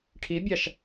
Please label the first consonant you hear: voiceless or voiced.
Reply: voiceless